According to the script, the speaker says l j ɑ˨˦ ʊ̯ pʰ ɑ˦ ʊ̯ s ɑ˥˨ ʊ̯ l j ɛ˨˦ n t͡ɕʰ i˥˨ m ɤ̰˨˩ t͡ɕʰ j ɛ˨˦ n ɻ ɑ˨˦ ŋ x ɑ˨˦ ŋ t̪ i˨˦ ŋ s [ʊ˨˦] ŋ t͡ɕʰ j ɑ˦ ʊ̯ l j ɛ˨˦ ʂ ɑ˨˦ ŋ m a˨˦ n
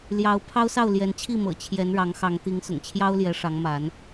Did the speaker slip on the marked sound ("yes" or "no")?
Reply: yes